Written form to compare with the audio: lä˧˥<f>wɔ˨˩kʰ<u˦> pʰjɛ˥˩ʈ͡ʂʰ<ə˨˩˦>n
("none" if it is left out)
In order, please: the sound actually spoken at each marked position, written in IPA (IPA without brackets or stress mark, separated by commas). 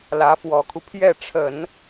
f, u˦, ə˨˩˦